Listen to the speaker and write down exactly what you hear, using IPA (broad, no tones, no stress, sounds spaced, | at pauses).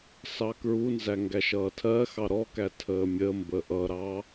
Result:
s ɑ k ɹ u n z æ ŋ ɡ æ ʃ ʌː tʰ ɜ x ɑ ɾ ɔ k æ tʰ əː mʲ ə m b ə ʔ ʌ ɾ ɑ